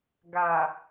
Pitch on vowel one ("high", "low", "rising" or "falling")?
low